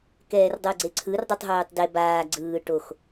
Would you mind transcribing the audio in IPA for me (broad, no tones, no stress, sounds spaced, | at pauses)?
k ɛː r dˤ ɤ ɡ͡ǀ e ǀʰ ɯ r dˤ ɯ tˤ ɦ oː tˤ d e b aː ɡ͡ǀ ɯː ʈ o x